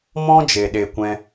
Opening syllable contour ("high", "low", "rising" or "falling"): high